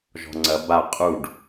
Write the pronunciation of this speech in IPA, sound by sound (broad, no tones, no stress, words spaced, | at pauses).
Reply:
ʒɔ̤ŋ͡ǀɐ ba qʼuɖ